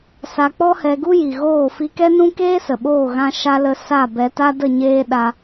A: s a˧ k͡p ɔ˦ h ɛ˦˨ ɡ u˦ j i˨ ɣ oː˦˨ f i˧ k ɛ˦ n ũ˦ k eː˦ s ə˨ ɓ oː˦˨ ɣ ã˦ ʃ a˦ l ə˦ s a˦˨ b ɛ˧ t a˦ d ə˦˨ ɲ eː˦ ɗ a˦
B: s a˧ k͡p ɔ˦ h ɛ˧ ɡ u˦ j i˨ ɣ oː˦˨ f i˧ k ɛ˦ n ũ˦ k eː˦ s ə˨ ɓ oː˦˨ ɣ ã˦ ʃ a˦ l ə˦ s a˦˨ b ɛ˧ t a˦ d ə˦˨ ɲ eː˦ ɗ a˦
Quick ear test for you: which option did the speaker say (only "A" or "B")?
B